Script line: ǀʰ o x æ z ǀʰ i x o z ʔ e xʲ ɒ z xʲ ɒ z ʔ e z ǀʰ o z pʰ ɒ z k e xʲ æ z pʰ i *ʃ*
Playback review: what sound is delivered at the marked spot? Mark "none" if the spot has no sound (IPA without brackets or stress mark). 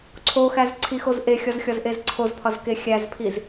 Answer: z